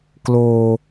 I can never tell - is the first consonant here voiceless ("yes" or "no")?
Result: yes